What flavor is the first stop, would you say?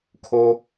aspirated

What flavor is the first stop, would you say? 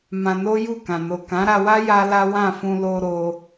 plain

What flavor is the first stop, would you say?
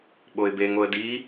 implosive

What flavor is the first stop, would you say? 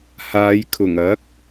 aspirated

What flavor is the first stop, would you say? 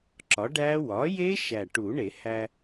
click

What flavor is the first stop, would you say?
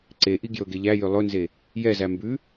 click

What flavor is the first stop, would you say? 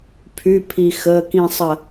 aspirated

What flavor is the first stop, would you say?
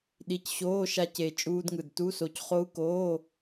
implosive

